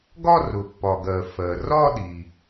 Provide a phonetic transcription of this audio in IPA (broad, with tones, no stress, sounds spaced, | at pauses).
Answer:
ɡ ɒ˥˧ r ʊ˩ pː ɒ˩ ɡ ɜ˩ f ɜ˩ r ɒ˥˧ ɗ i˩